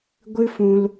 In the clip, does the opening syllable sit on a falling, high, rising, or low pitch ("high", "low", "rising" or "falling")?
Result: high